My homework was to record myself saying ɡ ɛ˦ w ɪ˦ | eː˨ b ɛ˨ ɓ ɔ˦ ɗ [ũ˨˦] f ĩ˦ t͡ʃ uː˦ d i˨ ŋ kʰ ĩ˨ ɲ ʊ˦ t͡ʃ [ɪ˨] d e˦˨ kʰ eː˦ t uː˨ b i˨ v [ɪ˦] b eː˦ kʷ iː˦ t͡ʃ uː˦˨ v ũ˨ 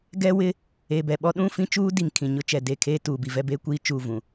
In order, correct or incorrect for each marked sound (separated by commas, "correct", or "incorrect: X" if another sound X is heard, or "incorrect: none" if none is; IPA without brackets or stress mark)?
incorrect: ũ˦˨, incorrect: ɛ˨, incorrect: ɛ˦